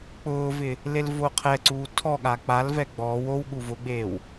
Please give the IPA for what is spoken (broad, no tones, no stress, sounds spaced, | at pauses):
k͡p ʊː v ɪ | l e l v o qʰ ɛ ǀ uː tʰ ɔ ɠ a k͡p a l v ɛ ɡ͡b ɔː w o w ɠ u v ʊ ɡ͡b eː w